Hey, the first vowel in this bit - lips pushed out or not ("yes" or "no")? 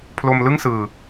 yes